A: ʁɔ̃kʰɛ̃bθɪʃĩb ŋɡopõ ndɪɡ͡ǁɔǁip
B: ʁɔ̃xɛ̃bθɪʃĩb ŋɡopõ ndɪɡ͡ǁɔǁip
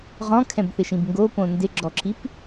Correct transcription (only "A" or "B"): A